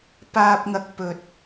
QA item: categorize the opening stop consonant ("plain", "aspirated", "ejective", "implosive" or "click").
plain